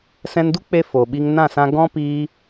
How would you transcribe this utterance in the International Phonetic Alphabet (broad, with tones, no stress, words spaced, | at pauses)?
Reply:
sɛ̃˧ndu˦k͡pe˧ fo˨ɓi˧ŋ nã˦˨sã˧ ɡɔ̃˦piː˧